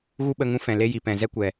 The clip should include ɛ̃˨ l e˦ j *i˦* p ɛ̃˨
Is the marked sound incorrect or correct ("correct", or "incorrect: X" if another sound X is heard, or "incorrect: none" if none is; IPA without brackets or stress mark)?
incorrect: i˨